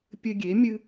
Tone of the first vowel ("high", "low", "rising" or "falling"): high